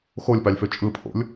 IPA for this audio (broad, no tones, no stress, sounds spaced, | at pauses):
x o lʲ p ɑ lʲ f ø t͡ʃʼ ɯ pʰ o̰ lʲ